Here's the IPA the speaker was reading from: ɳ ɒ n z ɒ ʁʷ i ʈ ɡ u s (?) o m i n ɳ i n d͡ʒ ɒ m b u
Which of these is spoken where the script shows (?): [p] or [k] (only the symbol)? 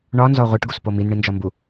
p